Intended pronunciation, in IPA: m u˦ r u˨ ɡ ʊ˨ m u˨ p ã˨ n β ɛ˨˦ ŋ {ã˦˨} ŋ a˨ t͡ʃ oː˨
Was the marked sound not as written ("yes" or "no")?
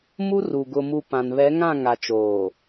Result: no